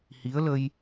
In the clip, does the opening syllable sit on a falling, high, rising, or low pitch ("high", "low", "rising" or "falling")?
rising